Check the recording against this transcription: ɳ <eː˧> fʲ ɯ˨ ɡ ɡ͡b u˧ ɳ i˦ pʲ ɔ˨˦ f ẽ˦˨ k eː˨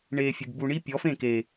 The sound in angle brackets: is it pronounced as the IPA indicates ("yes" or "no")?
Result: yes